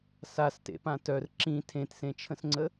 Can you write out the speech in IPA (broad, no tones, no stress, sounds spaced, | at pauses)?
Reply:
s a s t ḛ p ã t œ r ǁ ĩ tʰ ẽ t s ẽ t͡ʃʰ ə̃ s ŋ͡ǀ ə